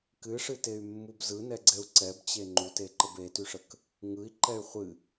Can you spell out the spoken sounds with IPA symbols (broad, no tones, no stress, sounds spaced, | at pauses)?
k ɨ ʂ ɨ t e y̯ mː u b z ɯ n ɛ ɡ͡ǀ ɛ u̯ ǀ ɛ b t͡ɕ e ŋ͡ǃ u t e ǃ ə b e t y ʂ ə k | ŋ ɯ i̯ ǃ ɛ y̯ χʷ ɨ